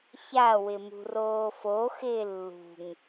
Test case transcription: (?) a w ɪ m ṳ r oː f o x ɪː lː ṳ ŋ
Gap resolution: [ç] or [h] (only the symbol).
ç